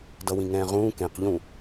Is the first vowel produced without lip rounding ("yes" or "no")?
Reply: yes